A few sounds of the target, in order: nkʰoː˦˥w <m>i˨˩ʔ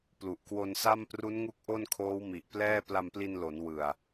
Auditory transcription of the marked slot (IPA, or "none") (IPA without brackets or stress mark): m